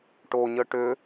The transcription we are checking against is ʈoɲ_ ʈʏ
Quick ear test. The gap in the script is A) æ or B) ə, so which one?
B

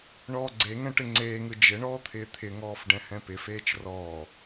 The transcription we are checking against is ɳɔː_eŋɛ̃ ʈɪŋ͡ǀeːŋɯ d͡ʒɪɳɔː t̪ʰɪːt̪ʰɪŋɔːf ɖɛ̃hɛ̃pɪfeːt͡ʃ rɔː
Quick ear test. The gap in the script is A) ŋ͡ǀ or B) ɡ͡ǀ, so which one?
B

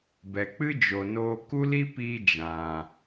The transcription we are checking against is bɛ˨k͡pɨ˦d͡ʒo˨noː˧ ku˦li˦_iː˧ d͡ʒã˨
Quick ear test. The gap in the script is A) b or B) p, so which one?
B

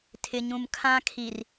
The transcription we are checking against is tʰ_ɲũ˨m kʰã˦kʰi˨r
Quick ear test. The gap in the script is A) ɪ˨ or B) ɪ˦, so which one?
A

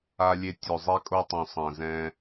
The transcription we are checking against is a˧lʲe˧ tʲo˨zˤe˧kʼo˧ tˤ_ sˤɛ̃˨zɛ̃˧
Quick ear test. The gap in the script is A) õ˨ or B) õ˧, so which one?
A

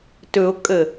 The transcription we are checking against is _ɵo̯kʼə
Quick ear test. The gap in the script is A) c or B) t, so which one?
B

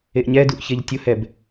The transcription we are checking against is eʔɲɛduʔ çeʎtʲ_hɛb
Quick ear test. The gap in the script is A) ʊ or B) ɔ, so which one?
A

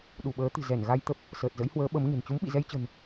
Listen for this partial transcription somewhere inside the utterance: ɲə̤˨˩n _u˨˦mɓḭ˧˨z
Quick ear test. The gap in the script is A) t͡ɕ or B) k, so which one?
A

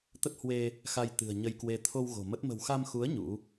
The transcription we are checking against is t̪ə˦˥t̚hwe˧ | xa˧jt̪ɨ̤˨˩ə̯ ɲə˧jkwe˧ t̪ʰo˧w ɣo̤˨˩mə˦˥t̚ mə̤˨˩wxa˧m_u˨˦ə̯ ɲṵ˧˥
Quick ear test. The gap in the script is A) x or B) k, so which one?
A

